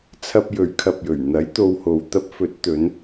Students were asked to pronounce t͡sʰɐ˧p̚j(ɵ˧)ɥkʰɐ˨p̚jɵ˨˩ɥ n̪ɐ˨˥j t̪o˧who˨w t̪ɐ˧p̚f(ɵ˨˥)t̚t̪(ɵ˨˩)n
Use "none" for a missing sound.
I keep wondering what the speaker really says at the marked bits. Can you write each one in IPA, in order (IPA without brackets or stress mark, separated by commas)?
ɵ˨˥, ɵ˨˥, ɵ˨˧